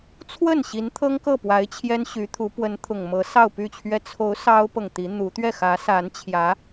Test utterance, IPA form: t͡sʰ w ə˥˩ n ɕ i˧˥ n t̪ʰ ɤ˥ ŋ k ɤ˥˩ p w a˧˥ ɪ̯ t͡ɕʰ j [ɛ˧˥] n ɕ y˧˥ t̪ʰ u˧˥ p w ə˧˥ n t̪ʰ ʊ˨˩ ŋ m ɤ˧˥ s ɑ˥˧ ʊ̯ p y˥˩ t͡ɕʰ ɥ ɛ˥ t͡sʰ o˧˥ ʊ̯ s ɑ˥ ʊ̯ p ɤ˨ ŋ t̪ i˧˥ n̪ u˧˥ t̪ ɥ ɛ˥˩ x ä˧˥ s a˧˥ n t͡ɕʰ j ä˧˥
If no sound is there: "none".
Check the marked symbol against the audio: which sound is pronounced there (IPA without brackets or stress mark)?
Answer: ɛ˥